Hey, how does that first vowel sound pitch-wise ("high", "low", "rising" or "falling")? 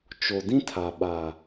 low